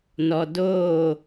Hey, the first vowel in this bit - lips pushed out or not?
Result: yes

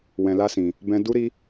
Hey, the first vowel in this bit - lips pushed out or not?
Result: no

